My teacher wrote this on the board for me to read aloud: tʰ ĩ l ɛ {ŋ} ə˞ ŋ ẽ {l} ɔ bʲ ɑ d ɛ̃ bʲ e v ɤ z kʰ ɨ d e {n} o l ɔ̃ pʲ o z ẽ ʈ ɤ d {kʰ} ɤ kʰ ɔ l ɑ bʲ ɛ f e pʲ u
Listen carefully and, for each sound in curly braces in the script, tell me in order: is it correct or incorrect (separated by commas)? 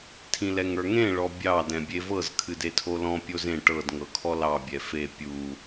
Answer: correct, incorrect, incorrect, incorrect